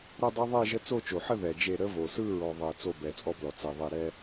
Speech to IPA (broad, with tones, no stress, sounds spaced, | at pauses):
ɾ ə˥˧ dˤ e˦˥ ðˤ e˥˧ ʒ ə˦˥ t͡s o˥˧ t͡ʃ o˩ ħ ə˥˧ ð ɛ˩ d͡ʒ e˧˩ ɾ ə˦˥ v o˩ s ɯ˥˧ ɹ ɔ˩ ðˤ ɛ˩ t͡s o˧˩ b ɛ˩ t͡sʼ ɔ˦˥ b l ɔ˩ t͡s ɛ˩ ðˤ e˧˩ ɾ ɛ˥˧